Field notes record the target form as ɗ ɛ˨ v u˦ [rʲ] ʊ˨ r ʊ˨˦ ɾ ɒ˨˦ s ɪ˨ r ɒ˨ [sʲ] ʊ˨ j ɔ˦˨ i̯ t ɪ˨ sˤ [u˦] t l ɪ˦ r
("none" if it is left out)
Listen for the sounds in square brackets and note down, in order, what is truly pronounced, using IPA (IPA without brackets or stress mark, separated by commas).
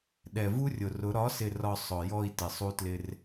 rʲ, sˤ, u˦